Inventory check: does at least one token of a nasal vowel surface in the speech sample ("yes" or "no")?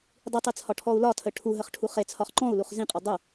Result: yes